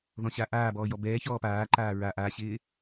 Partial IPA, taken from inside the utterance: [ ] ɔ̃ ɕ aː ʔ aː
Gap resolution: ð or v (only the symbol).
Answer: ð